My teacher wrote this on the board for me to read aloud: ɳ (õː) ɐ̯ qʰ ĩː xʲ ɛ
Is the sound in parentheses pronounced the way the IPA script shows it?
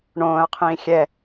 yes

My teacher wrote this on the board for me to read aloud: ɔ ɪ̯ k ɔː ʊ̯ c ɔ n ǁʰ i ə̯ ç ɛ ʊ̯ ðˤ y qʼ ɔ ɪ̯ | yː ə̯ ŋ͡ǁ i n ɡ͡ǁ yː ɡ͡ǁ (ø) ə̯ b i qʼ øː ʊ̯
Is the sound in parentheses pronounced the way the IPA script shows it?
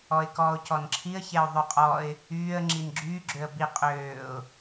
yes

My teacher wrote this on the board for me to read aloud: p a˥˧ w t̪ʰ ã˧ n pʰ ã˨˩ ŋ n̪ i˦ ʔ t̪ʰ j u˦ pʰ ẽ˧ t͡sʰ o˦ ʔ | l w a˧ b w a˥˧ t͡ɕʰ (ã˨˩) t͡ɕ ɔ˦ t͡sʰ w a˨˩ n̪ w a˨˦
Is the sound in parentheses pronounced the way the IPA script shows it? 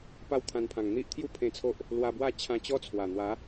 no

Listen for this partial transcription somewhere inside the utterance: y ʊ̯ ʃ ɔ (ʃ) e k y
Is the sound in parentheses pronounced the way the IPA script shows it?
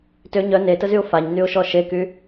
yes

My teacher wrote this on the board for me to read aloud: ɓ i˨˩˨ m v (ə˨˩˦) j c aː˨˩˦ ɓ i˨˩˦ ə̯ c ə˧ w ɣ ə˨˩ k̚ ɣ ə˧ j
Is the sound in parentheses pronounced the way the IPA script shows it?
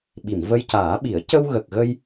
no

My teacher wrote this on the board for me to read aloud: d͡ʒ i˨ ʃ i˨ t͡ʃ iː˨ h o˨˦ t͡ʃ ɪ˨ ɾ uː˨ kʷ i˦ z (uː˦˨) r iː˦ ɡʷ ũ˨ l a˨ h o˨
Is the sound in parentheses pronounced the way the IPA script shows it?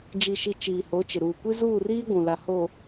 yes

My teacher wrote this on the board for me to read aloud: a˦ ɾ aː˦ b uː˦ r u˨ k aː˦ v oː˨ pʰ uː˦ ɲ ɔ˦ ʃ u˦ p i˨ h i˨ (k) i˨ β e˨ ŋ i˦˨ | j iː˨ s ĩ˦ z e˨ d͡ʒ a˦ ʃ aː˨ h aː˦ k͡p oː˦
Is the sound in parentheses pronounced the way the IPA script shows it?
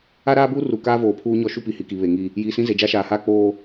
yes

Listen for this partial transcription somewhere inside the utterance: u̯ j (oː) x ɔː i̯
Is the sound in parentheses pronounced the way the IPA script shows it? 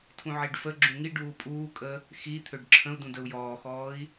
no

